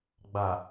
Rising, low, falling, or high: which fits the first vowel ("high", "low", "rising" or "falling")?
low